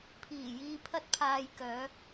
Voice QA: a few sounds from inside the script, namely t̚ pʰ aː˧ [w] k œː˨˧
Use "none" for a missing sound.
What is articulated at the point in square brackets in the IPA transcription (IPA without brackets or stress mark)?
j